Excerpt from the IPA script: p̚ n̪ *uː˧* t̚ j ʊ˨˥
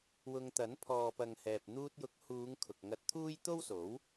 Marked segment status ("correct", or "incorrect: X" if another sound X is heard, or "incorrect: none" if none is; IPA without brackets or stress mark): correct